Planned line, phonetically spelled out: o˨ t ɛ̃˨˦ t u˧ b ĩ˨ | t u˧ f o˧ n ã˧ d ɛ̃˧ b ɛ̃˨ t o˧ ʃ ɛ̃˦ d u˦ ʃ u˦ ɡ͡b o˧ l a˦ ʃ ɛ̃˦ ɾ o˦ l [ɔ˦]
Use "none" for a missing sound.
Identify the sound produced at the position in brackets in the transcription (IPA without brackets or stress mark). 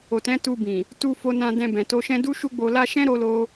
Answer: o˦